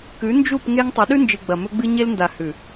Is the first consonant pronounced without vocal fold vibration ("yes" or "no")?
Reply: yes